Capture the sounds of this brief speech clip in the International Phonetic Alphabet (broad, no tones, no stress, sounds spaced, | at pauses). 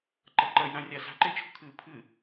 ǃ ɐ ǃ ɐ j ɾ ã rʲ a s a̤ ǃ e t͡ʃʰ ṳ kʰ ɨː pʰ ɨ